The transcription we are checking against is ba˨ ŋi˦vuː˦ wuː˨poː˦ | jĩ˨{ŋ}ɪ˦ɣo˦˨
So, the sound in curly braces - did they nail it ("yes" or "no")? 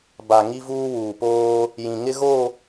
yes